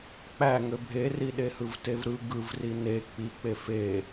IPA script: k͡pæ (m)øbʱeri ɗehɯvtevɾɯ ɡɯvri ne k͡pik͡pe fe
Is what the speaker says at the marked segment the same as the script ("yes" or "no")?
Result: no